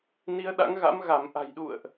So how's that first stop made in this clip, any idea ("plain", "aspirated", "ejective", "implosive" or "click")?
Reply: implosive